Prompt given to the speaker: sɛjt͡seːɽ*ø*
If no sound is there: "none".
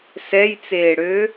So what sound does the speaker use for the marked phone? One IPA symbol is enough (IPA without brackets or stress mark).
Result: ø